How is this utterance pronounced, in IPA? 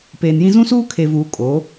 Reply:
p eː˨ n j ĩ˦ z ũ˦ s uː˦ kʰ e˨ v uː˨ kʼ o˨˦

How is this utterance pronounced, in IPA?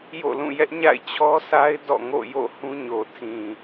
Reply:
j o̰˦˨ l ũ˦˨ j ɛ˦ ʔ ɲ a̰˦˨ ɪ̯ t͡ɕʰ ɔ˦ sʰ a˦ ɪ̯ d ɔ̰˦˨ ŋ o̰˦˨ j o̰˦˨ h ũ˦ ɲ o˨ tʰ ĩ˨

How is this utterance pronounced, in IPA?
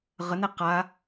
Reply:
ʁ ə n e q a

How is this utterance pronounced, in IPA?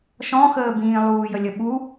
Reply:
ʃ ɔ̃ x əː b ĩː lˠ uː j ə lʲ ə ɓ u

